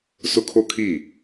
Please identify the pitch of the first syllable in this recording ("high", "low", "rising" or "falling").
high